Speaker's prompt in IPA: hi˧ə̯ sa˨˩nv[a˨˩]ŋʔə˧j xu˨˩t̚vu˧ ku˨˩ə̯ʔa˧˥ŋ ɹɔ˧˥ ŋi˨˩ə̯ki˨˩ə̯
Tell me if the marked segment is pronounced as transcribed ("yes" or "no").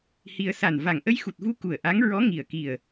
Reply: yes